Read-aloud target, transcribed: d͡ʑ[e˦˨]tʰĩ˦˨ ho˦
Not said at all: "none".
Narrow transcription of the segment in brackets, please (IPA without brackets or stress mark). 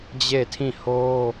e˦˨